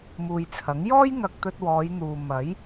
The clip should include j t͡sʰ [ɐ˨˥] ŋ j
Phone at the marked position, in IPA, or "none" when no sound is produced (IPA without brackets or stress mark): ɐ˨˥